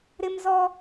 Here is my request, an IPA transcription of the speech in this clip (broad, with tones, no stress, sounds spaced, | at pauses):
ɾ ɪ˦ m z ɔ˦